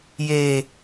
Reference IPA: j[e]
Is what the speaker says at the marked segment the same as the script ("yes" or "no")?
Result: yes